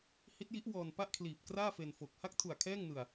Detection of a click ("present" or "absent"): absent